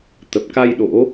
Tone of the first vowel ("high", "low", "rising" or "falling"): low